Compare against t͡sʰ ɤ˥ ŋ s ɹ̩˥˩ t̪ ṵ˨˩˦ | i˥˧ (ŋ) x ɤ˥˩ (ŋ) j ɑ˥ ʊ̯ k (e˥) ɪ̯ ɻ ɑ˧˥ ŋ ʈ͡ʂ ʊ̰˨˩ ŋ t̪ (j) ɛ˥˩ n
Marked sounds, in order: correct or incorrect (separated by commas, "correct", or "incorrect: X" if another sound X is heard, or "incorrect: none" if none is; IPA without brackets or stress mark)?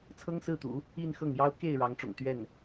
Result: incorrect: n, correct, incorrect: e˥˩, incorrect: ɥ